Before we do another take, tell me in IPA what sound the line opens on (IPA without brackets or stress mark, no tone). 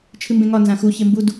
t͡ʃʰ